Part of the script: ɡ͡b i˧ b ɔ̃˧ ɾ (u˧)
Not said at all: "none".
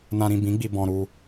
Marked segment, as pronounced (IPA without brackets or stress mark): u˧